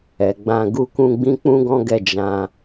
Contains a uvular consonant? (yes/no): no